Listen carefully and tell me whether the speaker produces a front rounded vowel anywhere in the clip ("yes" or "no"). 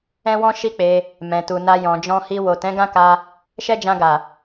no